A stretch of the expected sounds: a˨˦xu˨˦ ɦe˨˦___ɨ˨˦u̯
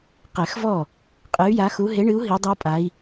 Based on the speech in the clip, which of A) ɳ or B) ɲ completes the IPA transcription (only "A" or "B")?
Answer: A